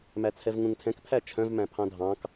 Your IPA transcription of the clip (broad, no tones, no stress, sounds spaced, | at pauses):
m æ t͡sʰ ɛ v ŋ ũ ŋ tʰ ɛ̃ k pʰ æ t͡ʃʰ œ̃ v m æ̃ pʰ ɑ̃ dʱ ɑ̃ k